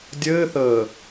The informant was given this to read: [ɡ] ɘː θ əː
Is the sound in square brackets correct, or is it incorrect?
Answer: incorrect